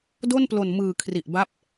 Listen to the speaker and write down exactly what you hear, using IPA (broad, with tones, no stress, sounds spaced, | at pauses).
d o˥˩ n p l o˨˩ n m ɯː˨˩ kʰ r i˨˩ ʔ b a˦˥ p̚